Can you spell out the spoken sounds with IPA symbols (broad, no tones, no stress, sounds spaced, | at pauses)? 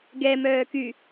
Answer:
ɡ ɛ m œː k y